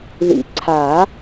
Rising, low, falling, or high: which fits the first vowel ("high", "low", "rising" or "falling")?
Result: low